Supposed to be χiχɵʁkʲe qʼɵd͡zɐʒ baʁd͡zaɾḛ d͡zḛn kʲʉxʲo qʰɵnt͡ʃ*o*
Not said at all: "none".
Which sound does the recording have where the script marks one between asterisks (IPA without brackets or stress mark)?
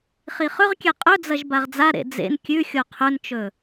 ɵ